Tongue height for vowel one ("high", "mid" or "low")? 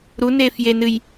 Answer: high